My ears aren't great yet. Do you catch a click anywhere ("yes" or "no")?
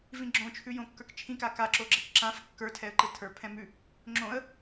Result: yes